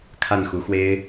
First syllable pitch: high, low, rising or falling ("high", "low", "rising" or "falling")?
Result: falling